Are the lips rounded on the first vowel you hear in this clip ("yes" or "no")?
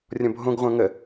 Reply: yes